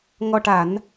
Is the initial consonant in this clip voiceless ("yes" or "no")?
no